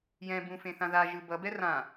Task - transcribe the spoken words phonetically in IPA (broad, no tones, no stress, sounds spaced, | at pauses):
j ɛ̃ b ũ f ẽ θ ã ð a ʒ ɯ b ʌ b ɛ r ã